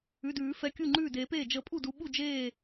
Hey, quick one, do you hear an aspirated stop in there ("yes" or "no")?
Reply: no